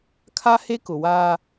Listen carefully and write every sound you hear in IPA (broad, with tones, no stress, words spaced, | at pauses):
kʰa˦he˦kʊ˨waː˦